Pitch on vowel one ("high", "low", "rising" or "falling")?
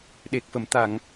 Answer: low